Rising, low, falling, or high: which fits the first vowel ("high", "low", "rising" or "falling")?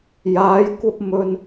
rising